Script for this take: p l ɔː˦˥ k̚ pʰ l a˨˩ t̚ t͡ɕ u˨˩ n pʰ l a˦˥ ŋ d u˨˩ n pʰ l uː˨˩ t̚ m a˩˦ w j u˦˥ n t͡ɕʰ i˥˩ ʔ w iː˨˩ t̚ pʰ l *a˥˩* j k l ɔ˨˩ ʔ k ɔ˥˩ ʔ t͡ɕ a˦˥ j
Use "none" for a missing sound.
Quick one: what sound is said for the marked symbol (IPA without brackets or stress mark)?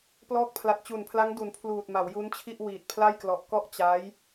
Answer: a˥˩